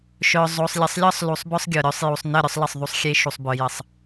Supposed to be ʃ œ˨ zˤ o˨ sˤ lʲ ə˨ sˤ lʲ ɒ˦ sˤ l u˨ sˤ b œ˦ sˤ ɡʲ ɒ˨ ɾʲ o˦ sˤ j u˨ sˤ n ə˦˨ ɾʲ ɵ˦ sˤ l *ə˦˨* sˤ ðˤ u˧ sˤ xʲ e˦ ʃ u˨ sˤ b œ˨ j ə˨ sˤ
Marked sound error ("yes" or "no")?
no